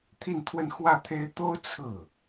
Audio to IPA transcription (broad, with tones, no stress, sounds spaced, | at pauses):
t̪ʰ i˥˧ n t̪ʰ w ə˥˧ n x w ä˥˩ t̪ʰ e˥ ɪ̯ t̪ o˥ ʊ̯ t͡sʰ ɹ̩˥˩